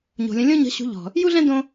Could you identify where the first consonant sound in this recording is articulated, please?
palatal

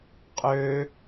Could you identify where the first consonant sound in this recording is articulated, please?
uvular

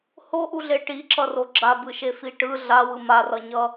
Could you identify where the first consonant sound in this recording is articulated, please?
glottal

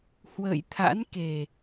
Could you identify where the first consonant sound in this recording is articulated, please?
glottal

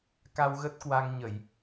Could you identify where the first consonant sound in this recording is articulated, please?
velar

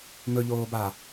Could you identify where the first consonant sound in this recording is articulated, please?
labial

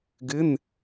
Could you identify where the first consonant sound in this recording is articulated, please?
velar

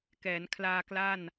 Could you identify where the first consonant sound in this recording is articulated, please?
velar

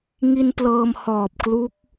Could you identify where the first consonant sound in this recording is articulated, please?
velar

